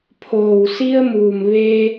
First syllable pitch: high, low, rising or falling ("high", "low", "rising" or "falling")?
low